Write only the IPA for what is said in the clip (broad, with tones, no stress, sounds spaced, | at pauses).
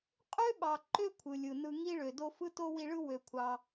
qʼ ø˥ ɓ ɑ˩ ǃ ø˦ kʷʰ ɯ˩ lʲ ɯ˩ n ɯ˨ ŋ i˥ ɭ ø˨ d o˥ f ɯ˥ t o˥ w i˦ ɭ ɯ˥ w ø˨ kʷʰ ɑ˨